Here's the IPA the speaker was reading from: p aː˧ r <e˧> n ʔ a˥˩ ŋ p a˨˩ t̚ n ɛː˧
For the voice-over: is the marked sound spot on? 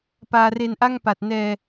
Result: yes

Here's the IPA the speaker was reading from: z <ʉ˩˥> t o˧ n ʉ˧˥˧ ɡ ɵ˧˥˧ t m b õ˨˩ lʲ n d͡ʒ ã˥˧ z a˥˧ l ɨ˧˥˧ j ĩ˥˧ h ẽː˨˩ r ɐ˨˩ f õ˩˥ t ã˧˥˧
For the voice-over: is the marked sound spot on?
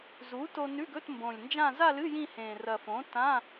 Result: no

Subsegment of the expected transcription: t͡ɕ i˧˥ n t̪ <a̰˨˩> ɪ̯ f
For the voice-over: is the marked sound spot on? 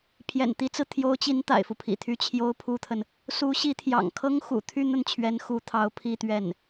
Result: yes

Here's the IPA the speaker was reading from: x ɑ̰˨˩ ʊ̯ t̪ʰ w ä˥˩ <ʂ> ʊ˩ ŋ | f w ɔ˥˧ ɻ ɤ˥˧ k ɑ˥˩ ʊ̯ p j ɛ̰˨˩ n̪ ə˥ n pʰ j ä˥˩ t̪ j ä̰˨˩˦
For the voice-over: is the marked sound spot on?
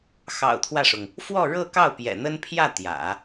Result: yes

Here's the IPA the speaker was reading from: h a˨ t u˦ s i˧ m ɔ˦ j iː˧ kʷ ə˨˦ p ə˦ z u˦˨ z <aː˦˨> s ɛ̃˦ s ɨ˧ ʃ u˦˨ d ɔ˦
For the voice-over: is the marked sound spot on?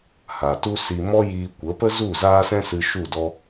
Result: no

